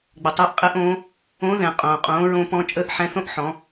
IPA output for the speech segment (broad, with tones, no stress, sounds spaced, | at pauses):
ɡ͡b ə˩ tˤ əː˧˥ ʔ qʼ ɛ˧˥ ʔ õː˧˥ | õ˧˥ ð ɛ̃˩ qʼ õː˩ qʼ õː˩˧ ɹ õ˧ p ɔ̃˧ t͡ʃʼ əː˧˥ ʔ ħ ɛ̃˧ θ õ˥ ʔ ħ ɔ̃˩˧